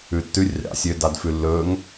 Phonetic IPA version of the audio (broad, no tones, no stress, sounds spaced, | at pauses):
ʉ tː ʉ rʲ ɑ̰ sʲ ø d ɑ d f ʉ lː ɵ ŋ